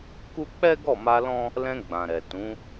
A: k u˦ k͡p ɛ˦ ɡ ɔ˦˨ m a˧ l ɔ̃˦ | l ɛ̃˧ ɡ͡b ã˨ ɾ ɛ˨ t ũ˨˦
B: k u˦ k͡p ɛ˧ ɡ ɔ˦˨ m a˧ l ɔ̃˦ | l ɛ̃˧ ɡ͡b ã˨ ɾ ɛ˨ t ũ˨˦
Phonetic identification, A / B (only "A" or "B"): A